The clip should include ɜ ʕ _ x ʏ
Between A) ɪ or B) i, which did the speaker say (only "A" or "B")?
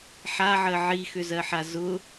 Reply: B